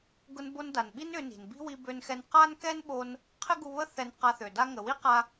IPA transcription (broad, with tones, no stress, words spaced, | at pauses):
ɡʊ˧nbo˧n da˩nɓi˥n ʏ˧ni̤˩n bi̤˥wi˧bø˧nxɛ˧n qa˥n kɛ˥nɓo˧n | qʰɪ˥ɡu˧ βə˥ θɛ˧n qa˧θø˩da˥ ŋə˩wi˥qa˧